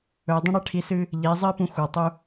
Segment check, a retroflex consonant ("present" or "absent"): present